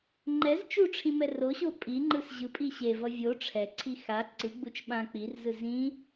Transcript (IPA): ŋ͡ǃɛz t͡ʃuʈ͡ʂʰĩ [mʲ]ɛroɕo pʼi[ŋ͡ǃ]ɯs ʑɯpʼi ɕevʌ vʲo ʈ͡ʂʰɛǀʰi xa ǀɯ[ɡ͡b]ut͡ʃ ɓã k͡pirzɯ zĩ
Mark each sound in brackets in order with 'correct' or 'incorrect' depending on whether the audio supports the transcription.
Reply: incorrect: m, correct, correct

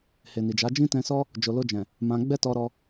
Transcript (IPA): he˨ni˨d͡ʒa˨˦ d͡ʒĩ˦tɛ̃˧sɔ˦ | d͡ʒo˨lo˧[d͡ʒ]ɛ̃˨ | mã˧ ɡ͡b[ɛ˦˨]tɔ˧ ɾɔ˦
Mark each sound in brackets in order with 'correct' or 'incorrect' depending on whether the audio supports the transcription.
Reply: correct, incorrect: ɛ˦

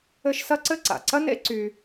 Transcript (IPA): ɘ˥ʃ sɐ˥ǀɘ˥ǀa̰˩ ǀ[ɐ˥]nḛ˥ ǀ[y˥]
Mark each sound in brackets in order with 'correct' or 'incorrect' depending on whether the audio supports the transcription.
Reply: correct, correct

